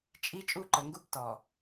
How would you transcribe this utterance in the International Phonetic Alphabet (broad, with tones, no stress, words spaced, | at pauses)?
t͡ʃʼi˦ t͡ʃʼu˦ǃə˨ŋɡu˦b tɔ˨